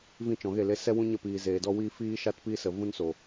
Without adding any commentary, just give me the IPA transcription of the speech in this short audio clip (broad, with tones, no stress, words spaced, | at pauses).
vĩ˦˨t͡ʃɔ̃˨ɣe˦˨le˧ sɛ˦ wũ˦ɲə˦˨piː˨ zeː˨dɔ˦wiː˦ fiː˦ʃa˦tpi˦ sə˨ vũ˦nso˨